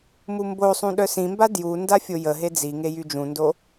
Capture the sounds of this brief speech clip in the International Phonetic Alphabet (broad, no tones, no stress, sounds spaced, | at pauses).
m u m b o sˤ ũ ɗ œ s ĩ m b a d j u n d a fʲ o j ə ɦ e d͡z i ŋ e j y d͡ʒ ũ n d o